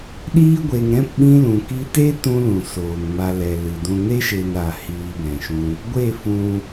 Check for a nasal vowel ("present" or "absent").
present